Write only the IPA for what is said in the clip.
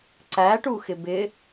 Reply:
ǀæʈuxɪ bɪ

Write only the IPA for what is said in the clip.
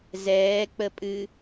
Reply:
zɛːk͡pəpʼɨ

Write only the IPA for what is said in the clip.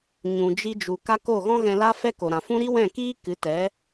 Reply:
ɲũ˨d͡ʒi˧d͡ʒu˨ ka˦ko˦˨ ɣɔ̃˦ɣɛ̃˧la˦fɛ˦ ko˨ɾã˨fũ˦ ɾi˦wɛ̃˦˨kiː˦ kɨ˨˦tɛ˨˦

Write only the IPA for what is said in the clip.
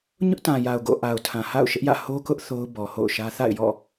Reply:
ɲʊ˦ʔtã˨ja˨ʊ̯ ɡo̰˦˨ ʔa˨ʊ̯tʰã˨ha̰˦˨ʊ̯ ʃɪ˦ʔjä̰˦˨ ho˦kʊ˦ʔ θo˦ʊ̯ bɔ˨ho̰˦˨ʊ̯ʃä˦ θa̰˦˨ɪ̯jɔ̰˦˨

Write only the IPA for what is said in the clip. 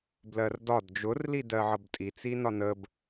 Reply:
blɜrdɒd d͡ʒʊrli dɜʕʌbtʼit͡si nɒnəb

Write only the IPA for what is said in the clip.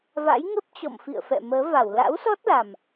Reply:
va̰˧˥jŋə˦˥p̚t͡ɕɔ̰˧˨m fḭ˧˨ə̯fɛ̰˧˨məː˨˦va˧˩w la̰˧˥wsɔ˦˥t̚la˨˩m

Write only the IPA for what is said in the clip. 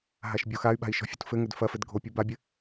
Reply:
ɦaʃbʲoxay̯ɓa̤i̯ ʃɔ̤fʲṳtfɘŋɘd fɐfɘd ɡʱopʲu babʲɘ

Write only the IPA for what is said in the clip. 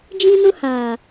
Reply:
d͡ʒĩ˦nʊ˦ haː˨

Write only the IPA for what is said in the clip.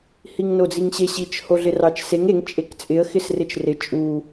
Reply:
hiŋnod͡ziŋɕe ɕit͡ʃ hoɮɪrɑt͡ʃseŋ eŋ t͡ʃʼekt͡sʼɪə̯ xɪsrɪt͡ʃrɪ t͡ʃʼu

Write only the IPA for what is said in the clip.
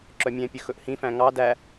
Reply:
ǁœmʲɛ̃pʲɵ xɵʔhĩfæ̃ ŋɑ dæ

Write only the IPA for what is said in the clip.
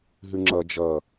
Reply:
ɦʉŋ͡ǁʌ d͡ʒʌ

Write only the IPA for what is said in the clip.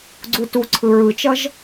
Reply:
ɡ͡ǀutu ǀʰɯɹɯt͡ʃʌʒ

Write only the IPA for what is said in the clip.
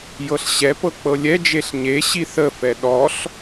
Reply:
jɤɬɕɛpɤ k͡pɤlʲɛd͡ʒeɬ ɲe ɕiθəfɛ ɗɔɬ

